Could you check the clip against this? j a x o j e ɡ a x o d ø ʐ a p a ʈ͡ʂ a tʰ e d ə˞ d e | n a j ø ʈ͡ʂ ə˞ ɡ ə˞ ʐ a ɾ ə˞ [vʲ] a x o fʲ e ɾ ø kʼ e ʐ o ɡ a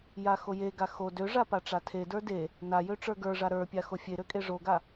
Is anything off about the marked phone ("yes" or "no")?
yes